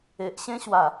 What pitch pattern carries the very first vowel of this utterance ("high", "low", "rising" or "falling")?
low